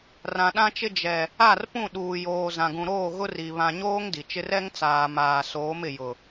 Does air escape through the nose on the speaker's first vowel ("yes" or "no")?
yes